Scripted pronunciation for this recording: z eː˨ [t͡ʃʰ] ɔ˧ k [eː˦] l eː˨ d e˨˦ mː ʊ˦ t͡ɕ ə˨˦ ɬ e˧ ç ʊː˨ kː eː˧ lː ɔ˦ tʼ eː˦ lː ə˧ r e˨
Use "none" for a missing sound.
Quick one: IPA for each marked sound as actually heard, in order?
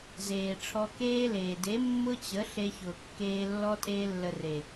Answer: ʈ͡ʂʰ, eː˦

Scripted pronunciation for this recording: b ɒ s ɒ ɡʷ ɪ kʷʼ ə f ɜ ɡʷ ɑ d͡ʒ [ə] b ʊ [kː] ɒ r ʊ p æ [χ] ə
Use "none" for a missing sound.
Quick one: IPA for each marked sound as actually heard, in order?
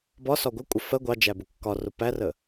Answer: æ, kː, r

